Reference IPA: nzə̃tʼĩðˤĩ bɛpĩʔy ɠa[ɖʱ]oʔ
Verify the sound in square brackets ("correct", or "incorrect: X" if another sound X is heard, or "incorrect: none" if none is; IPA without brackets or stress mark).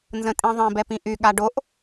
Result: incorrect: ɖ